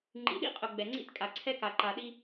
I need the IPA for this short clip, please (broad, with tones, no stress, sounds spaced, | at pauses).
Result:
ŋ͡ǃ ḭ˨ ɗ ḭ˦ qʼ ʊ˨ ɡ͡b ɛ˨ ŋ͡ǀ ḭ˦ t kʼ a˨ ǀʰ ɛ˦ k a˨ ǃ a˨ ɗ i˦